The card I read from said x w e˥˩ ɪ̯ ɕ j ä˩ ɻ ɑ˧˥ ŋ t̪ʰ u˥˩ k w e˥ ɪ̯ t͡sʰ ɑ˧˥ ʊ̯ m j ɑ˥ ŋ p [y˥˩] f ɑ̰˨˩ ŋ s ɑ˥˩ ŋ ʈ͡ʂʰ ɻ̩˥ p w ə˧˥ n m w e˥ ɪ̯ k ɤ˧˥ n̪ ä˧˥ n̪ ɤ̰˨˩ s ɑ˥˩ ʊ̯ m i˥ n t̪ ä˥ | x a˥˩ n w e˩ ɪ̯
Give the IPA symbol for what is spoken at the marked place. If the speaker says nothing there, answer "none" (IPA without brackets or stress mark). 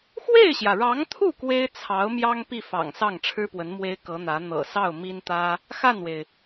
i˥˩